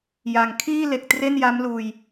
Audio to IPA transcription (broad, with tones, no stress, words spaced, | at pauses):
ja˨˩ŋ kʰiː˥˩le˨˩k̚ tre˥˩nja˦˥m luː˧j